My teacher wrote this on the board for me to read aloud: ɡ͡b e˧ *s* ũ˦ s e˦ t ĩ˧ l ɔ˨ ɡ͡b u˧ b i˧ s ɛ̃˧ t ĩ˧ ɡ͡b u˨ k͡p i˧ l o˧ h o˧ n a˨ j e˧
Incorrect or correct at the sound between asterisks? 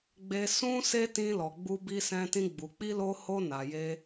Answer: correct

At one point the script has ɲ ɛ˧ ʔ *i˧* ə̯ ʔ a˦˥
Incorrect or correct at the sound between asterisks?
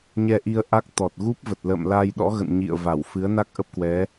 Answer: correct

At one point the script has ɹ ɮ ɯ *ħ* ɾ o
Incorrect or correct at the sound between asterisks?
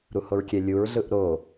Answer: incorrect: ʔ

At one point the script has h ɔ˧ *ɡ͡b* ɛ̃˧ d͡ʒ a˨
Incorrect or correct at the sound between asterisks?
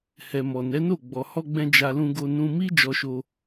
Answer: correct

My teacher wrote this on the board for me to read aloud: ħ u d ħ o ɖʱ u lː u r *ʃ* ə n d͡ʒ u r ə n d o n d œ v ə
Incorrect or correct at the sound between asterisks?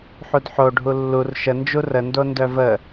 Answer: correct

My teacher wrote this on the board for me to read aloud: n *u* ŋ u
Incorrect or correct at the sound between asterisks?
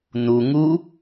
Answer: correct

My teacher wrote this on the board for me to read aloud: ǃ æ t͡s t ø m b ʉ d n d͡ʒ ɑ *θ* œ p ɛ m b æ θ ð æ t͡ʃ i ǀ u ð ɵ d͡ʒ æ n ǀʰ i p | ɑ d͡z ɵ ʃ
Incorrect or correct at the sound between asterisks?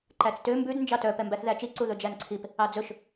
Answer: incorrect: t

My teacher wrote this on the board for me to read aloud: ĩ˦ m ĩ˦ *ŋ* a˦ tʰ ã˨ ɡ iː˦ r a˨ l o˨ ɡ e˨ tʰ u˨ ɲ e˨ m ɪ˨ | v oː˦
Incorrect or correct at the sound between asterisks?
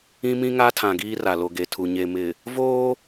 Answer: correct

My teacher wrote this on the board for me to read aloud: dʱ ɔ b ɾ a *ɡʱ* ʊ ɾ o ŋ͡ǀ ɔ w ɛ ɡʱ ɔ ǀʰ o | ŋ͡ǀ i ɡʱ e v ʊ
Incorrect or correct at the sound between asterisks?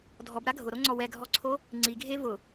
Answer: correct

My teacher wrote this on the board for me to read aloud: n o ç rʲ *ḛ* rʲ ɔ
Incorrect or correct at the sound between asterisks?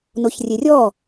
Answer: incorrect: e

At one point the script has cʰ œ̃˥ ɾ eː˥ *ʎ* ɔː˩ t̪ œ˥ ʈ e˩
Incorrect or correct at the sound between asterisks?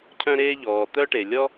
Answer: correct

